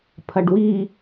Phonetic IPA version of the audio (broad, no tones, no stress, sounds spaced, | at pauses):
pʰ ɐ ɖ w i